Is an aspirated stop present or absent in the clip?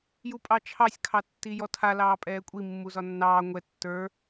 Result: present